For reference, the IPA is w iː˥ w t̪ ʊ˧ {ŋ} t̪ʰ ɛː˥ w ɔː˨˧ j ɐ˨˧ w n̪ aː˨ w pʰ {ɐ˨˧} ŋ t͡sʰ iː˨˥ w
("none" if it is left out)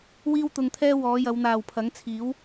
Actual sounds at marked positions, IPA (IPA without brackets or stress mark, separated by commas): ŋ, ɐ˨˥